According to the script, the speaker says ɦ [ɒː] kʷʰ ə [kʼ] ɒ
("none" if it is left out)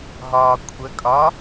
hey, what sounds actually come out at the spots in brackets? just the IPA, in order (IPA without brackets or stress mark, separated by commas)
ɒː, kʼ